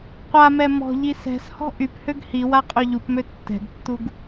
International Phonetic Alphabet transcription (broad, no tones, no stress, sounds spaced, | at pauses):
qʷ a m ɛ m ɔ̤ ʎ i s ɛ̤ s h ɔ̤ ʔ y p h ø ɡ h i w a qʼ ø ʎ u p m ø tː ɛ̤ ɡ tː u ɡ